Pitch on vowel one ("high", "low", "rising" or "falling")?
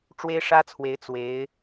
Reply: high